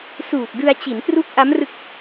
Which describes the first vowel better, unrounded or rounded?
rounded